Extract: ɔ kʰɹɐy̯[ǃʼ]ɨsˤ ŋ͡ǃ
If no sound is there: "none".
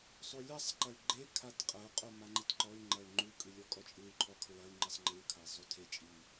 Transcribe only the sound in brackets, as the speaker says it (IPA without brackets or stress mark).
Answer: ŋ͡ǃ